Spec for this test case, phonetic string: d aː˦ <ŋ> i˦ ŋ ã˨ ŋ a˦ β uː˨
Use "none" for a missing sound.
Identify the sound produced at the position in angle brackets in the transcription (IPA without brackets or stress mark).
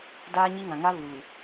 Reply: ɲ